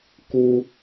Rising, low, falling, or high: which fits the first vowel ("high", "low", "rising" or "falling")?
high